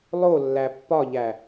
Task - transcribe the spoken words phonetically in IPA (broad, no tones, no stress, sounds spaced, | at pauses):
lˠ o lː æ pː ɒ ʎ æ